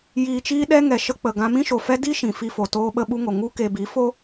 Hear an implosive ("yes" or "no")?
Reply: yes